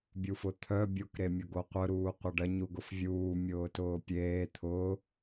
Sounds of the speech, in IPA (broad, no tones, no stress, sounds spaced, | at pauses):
bʲ u f ʊ t̪ʰ œ bʲ o k ɾ e mʲ ʊ ɡ o qʷ œ ɾ uː qʷ ɐ ɖ ɐ ɲ u ɡ ʊ f vʲ uː mʲ ʊː t ʊː pʲ eː t̪ʰ ʊː